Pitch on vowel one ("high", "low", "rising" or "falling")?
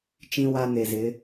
high